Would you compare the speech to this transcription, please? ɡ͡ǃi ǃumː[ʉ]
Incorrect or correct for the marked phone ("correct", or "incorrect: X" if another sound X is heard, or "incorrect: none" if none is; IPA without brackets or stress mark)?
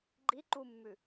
correct